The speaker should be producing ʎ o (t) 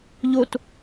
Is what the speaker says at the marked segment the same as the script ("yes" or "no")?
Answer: yes